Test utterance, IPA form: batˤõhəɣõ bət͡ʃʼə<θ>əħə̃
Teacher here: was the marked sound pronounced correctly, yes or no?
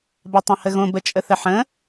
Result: yes